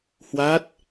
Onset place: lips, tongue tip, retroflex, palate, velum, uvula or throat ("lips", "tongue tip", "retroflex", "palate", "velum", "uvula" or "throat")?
throat